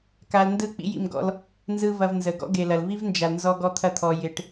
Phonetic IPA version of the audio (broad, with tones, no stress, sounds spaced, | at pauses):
k a˧ l n d ɯ˦˨ k͡p ḭ˦ j ḭ˧ m ɡ ɔ̰˧ l | n z ɯ˦ v ɐ˧ v n z ə˨ ɡ ɔ̰˦ ɡ e˨ l ɐ˨ l v i˦ v n d͡ʒ a˨ l n z ɔ˧ ɡ ɔ˧ t̪ʰ ɐ˧ t̪ʰ ɔ˨ j ɪ˨ ʈ